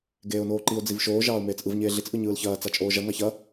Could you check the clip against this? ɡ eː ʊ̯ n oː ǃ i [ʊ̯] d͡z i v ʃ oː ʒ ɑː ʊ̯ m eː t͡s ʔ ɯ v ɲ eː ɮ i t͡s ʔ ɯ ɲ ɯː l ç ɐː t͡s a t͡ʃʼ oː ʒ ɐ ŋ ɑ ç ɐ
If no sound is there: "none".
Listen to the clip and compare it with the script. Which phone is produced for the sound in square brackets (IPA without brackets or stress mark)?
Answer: ʊ̯